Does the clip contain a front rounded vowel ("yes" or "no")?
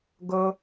no